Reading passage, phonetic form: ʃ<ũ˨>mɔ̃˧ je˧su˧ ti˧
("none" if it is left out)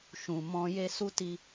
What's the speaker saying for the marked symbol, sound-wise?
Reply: ũ˨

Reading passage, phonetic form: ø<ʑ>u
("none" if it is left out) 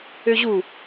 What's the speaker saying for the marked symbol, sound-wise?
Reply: ʑ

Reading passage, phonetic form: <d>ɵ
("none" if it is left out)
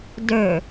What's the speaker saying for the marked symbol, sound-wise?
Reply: d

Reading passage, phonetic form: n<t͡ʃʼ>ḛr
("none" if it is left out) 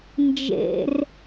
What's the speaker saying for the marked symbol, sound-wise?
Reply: d͡ʒ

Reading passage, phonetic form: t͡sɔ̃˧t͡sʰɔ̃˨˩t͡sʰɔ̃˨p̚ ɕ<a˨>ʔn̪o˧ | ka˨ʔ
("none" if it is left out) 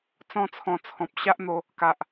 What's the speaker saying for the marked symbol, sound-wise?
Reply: a˦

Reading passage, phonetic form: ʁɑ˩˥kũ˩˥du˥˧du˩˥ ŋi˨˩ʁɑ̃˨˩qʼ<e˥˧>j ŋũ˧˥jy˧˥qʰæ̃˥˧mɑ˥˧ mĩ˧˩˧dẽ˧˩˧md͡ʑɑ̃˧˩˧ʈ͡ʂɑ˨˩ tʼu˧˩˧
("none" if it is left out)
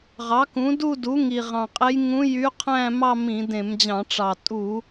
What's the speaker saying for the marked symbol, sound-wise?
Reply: e˧˥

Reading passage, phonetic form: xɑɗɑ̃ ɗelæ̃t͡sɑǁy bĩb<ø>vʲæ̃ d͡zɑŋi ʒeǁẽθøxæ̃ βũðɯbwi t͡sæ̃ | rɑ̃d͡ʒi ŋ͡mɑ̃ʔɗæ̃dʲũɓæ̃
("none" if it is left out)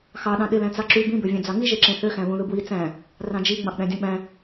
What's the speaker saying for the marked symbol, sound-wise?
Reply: ø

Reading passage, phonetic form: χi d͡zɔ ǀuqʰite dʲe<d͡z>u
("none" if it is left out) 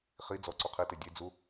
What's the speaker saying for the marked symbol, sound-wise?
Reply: d͡z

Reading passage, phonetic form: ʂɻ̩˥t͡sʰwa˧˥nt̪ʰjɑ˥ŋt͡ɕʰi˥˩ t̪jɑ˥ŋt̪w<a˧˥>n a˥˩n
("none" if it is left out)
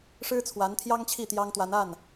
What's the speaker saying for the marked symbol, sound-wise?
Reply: a˧˥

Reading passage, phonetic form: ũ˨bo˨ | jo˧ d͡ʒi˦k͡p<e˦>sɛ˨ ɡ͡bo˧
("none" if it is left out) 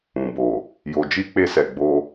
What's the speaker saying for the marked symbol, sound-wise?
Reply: e˧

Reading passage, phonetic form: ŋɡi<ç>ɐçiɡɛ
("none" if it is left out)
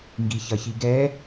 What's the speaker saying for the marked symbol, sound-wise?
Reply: ç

